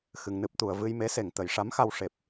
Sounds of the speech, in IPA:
xɨ˧ŋnɨ˦˥p̚t̪u˧ə̯ vɨ˧j me˧˥se˨˩ŋ t̪ə˨˩˦jʂa˧˥mxa˧w ʂe˨˩p̚

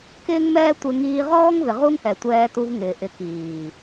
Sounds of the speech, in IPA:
kɪː˦ŋmɛː˦tʷɪ˧ ŋiː˧ʁɔː˦ŋvɪ˨ ʁu˦ŋhɛ˨tʷɛː˧tu˧v ŋɪː˨ʔɪ˧kiː˨

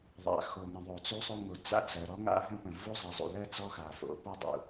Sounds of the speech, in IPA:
ðˤa̰˩xo˩ŋə̃˩ ðˤo˩t͡su˥sˤo˥ŋo˩ d͡za̰˥d͡zɜ˩ɾɔ˥ŋa̰˥ ɦə̃˥pə̃˩ vu˥zˤɘ˩zˤṵ˩lɜ˥ t͡sɔ˥xa˩ fo̰˩pɜ˥ dˤṵ˩

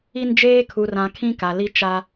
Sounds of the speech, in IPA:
i˦nd͡ʒeː˦ kʰu˨rã˨ kʰĩ˦ka˨ li˦t͡ʃa˦

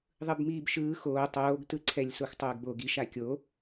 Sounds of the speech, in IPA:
ðˤɯbmiːbʃɯː xoː tˤoːɡtɯǀʰɛlʲ soxtˤoːɡbo ɡiʃa kʲo

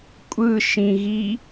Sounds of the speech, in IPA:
kʷʼɯʃĩɣi

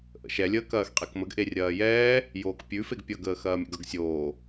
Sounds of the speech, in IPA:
ʔə̰ʃɛlʲəː kɐːxqʼekməɡ ʔerʲɐːjɛː | joːkpʲʉfeɡ pʲʌɡəː xɐːmʲə̰ɡʌɡsʲoː

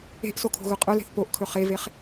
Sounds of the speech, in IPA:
e̤ʔsokʰo̤ɣɵ qʼœle̤θ poʔkʰɵ χeveχ

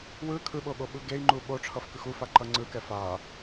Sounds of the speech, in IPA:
wɯ kʰɯɓoɠoɓɯ ɡei̯ŋ͡ǃu ɓoʈ͡ʂʰʌfkɯx ufaǃʌ ŋ͡ǀɯkɛ fa

